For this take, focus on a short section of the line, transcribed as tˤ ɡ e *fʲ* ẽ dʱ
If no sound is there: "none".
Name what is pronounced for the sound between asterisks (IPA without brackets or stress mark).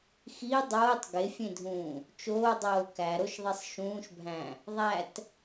fʲ